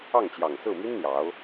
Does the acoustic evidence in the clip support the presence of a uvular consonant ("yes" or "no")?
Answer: no